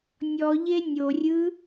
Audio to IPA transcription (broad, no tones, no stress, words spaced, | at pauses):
nʲɔʎe nʲorʲɯ